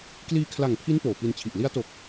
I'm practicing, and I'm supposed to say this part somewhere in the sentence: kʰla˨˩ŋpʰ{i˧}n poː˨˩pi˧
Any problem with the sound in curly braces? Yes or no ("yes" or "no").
yes